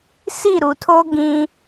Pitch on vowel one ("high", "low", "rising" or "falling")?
falling